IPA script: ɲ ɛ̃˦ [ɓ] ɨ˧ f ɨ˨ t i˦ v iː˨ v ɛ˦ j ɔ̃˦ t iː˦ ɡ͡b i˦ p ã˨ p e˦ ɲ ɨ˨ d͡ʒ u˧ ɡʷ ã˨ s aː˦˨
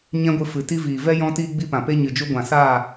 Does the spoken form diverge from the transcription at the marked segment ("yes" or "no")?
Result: yes